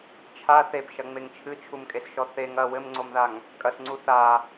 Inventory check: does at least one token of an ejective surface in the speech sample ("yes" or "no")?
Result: yes